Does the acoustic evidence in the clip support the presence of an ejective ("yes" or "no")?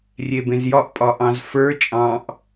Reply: yes